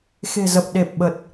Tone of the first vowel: low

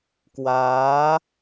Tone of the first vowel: rising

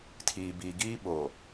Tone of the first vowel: low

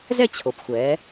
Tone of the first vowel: falling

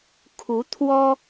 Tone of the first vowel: rising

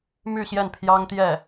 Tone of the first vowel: falling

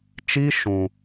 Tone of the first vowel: high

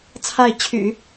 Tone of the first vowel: falling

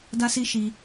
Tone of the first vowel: high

